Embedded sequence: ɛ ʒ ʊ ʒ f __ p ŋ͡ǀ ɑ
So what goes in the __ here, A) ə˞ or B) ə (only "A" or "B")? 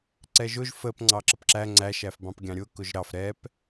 B